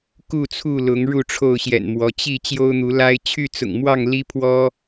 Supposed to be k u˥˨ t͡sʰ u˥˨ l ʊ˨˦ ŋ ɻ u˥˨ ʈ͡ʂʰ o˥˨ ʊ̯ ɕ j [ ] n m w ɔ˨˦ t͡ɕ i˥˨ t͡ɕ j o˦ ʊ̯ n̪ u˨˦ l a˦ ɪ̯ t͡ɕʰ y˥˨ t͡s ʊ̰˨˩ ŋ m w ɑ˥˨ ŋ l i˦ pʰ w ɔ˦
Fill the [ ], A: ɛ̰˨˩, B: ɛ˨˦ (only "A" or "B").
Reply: A